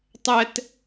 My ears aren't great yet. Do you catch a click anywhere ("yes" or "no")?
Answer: no